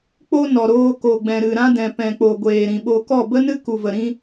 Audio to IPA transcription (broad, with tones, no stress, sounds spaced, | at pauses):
k͡p o˧ n ɔ˨ ɾ oː˧ k o˨ ɡ͡b ɛ̃˨ ɾ ɨ˨ ɾ ã˦ d ɛ̃˨ p ɛ̃˨ k͡p o˨ ɡʷ eː˨ ɾ ĩ˨ ɓ o˧ k ɔ˦˨ b ə˦ n ɨ˦ k u˨ v ə˨ ɾ ĩ˦